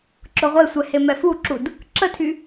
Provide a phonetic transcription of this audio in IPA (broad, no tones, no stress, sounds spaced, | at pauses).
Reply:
ǁ ʊ ʁʷ e sʷ ɛ h e m ɛ f u ǁ u d | ǁ ə tʰ y